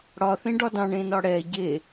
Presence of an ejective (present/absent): absent